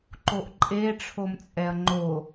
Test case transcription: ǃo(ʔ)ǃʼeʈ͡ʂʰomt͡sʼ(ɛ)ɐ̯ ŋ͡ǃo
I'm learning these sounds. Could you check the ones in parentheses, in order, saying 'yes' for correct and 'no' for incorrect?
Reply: yes, yes

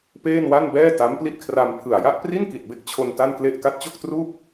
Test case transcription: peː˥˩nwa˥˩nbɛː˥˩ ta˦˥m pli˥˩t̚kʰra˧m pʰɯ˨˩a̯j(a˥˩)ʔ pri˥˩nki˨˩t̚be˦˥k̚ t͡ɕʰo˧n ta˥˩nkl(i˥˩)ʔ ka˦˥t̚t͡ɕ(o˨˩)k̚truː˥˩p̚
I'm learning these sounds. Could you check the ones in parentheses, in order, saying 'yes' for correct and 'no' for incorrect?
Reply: yes, no, no

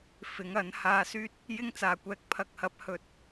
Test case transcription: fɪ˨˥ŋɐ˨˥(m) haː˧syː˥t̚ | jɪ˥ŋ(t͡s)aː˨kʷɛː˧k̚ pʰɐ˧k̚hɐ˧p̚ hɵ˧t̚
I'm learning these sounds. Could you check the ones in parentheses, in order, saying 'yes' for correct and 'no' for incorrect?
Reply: no, yes

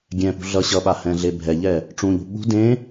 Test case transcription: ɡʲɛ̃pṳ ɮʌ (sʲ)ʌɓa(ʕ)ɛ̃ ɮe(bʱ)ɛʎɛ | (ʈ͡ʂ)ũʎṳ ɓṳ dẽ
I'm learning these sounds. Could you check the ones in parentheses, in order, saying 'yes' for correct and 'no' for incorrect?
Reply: no, no, yes, yes

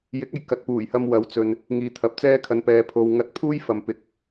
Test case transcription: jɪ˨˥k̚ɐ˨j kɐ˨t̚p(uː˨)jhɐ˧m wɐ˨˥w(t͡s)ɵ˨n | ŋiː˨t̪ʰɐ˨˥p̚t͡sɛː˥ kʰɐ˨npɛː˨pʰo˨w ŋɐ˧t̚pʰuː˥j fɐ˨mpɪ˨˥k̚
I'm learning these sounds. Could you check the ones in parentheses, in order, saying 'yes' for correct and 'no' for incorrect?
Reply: no, yes

